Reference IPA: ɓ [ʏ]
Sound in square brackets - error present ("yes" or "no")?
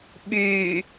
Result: yes